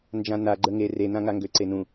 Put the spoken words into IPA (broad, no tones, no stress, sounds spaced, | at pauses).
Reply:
n d͡ʒ ã n a ɡ͡ǃ ə ŋ e r e n ã ŋ a ŋ ɡ ø ǀ e n ũ